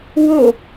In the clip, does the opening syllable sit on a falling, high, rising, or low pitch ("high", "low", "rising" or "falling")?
falling